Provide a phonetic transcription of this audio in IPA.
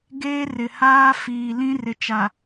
ɡ eː˦ r ɪ˨ h aː˦ f iː˨ l ĩ˦ r ɪ˨ t͡ʃ a˨

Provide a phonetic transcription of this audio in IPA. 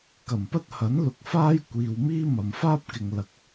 k ɐ˨˩ m p ɐ˥ t̚ h ɐ˨˥ n l ʊ˨˥ k̚ f aː˥ j kʷ iː˨ w m iː˥ m ɐ˨ m f aː˥ p̚ k ɪ˨ ŋ l ɐ˨˥ k̚

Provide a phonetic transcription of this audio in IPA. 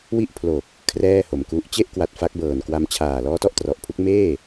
w i˥˩ ʔ pʰ l o˨˩ k̚ | kʰ r ɛː˥˩ h o˩˦ m k u˦˥ ʔ t͡ɕ e˥˩ ʔ k w a˨˩ t̚ f a˦˥ k̚ b ɤː˨˩ n k w a˧ m t͡ɕʰ aː˨˩ l ɔː˦˥ t ɔ˥˩ ʔ t r ɔ˨˩ ʔ pʰ u˦˥ k̚ m eː˥˩

